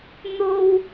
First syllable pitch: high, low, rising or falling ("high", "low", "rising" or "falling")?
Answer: high